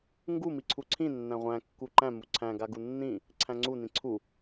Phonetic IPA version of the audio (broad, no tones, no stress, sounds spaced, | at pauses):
ŋ ɡ u m i ǀʰ u ǀʰ ĩ nː æ̃ ʁʷ æ̃ kː u ǃ æ̃ m u ǀʰ æ̃ ɡ a ɡ u nː ĩ | ǀʰ æ̃ ŋ͡ǀ u n ĩ ǀʰ u